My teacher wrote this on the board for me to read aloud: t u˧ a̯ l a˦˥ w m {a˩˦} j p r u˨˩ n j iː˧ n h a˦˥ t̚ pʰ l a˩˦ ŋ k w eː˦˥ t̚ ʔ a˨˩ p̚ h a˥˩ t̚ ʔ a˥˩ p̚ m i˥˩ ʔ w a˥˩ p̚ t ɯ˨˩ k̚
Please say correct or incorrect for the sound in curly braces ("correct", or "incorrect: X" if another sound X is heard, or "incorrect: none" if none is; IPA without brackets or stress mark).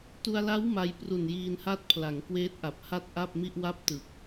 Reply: incorrect: a˧